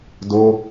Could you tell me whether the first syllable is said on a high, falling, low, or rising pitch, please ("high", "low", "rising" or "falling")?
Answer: high